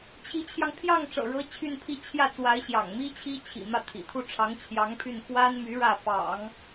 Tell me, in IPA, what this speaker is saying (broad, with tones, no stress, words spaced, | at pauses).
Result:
t͡ɕʰi˧˥t͡ɕʰjɑ˧ŋ pʰjɑ˥˩ŋʈ͡ʂɤ̰˨˩ɻɤ˧˥ t͡ɕʰy˥˧npʰi˥˧ t͡ɕʰjä˥˩t͡swa˧˥ɪ̯ɕjɑ̰˨˩ŋmi˥ t͡ɕʰi˥t͡ɕʰḭ˨˩ mä˥˩t̪ʰḭ˨˩ t̪ʰu˥˩ʈ͡ʂʰɑ˧˥ŋt͡ɕʰjɑ˧˥ŋpʰy˥˩n xwa˥nmy˧˥ ɻä˥˩fɑ̰˨˩˦ŋ